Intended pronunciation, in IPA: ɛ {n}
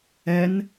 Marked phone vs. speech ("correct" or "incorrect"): correct